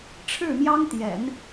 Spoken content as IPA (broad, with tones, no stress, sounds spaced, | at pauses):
ʈ͡ʂʰ ɻ̩˥˩ m j ɑ˥ ŋ t̪ j ɛ̰˨˩˦ n